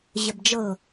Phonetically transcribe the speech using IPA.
ʑ ə b d͡ʒ ɤ

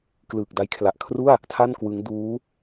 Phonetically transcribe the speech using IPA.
k l ɯː˨˩ k̚ d a˦˥ j kʰ l a˨˩ ʔ kʰ r u˥˩ a̯ | tʰ a˥˩ n k w ɯ˦˥ ŋ d uː˦˥

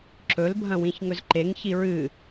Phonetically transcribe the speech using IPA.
ǁ ɵ l bʱ ɐ̃ w ĩ ç ŋ ɵ z ǃ e ŋ ç i ɹ ɨ

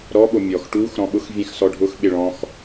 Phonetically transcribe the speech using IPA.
ɾ ɔ ɓ o mʲ ɔ x ʈ u x ɾ ɔ̃ ɓ ʊ x vʲ ɛ̃ x s ɔ ɖʱ ʊ x ɓ ɪ ɭ ɔ̃ x

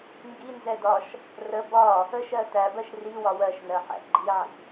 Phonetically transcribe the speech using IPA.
ŋ ɡ i n z ɛ d ɒ ʃ | r ə b ɒ | ə ʃ ɜ t æ b ɜ ʃ r i w ɒ w ɜ ʃ n ɜ ħ æ̰ ɡ͡ǃ i ʕ ḭ

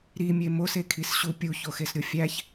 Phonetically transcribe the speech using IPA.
ɾ i mʲ e m o s e kʰ i s ɕ u pʲ u ç o x e s ɾʲ o fʲ æ ç

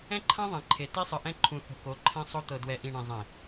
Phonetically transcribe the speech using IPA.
ɛ̃˦ ǃʰ ã˦ ðˤ ɛ̃˨ ǃʰ e˨ t i˦ sˤ ɯ˨ ʔ ɛ̃˦ ǃʰ ũ˨ θ o̤˨ k o˨˦ ǃʰ ɛ̃˦ sˤ o˦ t̪ ɤ˨ d w ɛ˨ ʔ ĩ˨ ɳ ẽ˨ zˤ ẽ˨

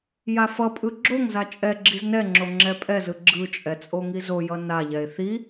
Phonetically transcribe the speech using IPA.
j a f ʌ pʼ ɯ ɡ͡ǁ o ŋ z a t͡ʃʼ ɛ ɡ͡ǁ i z n ɛ ŋ͡ǁ o ŋ͡ǁ ɛ pʼ ɛ z ɯ ɡ͡ǁ ɯ t͡ʃʼ ɛ t͡sʼ o ŋ i z o j ʌ n a ʎ ɛ e̯ θ i

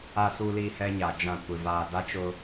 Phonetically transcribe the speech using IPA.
a˨ s u˨ l i˨ h ɛ˦ ɲ a˨ d͡ʒ ã˦˨ kʷ ɪ˨ v aː˨ d a˦ t͡ʃ ʊ˦

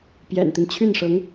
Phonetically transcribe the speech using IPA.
p j ɛ̰˨˩ n t̪ i˦ n t͡ɕʰ y˥˩ n ʂ ɤ˧˥ ŋ

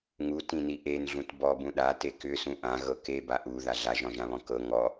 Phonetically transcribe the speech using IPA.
ŋ u t ĩ n i ʔ e n ɮ ũ t b ɔ b ũ ɗ a t e k ʏ s ũ ʔ ã ɣ ɤ k e b a ʔ u ð a ɮ a ʒ ɔ̃ ʒ ã β ɔ̃ k ɤ ŋ ɔ

